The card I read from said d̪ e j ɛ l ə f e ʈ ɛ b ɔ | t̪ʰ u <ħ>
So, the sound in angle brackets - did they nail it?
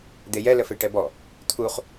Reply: no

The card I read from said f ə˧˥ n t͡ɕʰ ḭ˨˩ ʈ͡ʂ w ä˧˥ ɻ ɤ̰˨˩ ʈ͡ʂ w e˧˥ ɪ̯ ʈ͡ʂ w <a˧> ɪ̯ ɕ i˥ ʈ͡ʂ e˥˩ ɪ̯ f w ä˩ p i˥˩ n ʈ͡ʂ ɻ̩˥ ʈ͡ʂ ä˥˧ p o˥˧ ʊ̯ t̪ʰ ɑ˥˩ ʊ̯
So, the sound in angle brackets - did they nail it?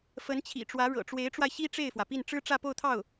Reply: yes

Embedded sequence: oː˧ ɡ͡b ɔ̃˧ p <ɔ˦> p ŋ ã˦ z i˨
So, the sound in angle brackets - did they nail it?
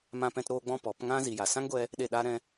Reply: no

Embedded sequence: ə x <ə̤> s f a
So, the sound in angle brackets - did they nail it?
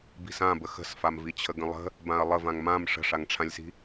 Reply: yes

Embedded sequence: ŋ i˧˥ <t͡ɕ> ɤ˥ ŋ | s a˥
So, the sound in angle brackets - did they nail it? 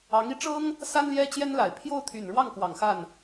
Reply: no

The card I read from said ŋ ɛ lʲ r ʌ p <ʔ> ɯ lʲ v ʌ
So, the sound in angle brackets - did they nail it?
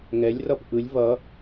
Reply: yes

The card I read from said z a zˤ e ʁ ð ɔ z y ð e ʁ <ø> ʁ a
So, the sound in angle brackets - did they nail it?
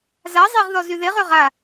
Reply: yes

